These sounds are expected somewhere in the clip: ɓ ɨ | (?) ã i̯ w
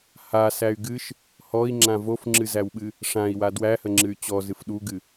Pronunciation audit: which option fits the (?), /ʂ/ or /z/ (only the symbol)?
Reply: ʂ